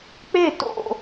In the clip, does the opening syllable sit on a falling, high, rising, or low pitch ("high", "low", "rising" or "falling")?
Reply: falling